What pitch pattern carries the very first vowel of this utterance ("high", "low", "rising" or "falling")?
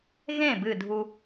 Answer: falling